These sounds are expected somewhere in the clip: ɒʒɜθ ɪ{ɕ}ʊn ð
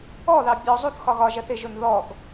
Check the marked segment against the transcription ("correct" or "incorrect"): incorrect